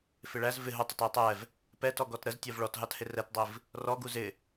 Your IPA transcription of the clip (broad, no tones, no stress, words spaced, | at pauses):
fɪɭæz vɪ ɦʊtˤət ɜtˤɛv | pɛtɔɡɔt ɾəztʲɜv ɭɔtɦɑthɪ rɛtdˤiv | rɔɡu zɪ